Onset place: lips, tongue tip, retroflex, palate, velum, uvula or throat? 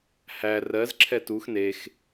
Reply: throat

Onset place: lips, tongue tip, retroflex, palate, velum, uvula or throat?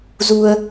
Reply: tongue tip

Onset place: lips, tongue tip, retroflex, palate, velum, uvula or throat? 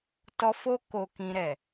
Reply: tongue tip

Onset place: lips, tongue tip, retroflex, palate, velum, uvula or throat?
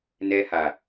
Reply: tongue tip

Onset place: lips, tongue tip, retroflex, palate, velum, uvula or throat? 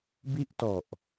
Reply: lips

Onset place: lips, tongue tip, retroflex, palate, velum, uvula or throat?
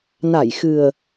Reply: tongue tip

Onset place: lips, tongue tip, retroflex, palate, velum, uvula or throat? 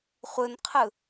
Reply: uvula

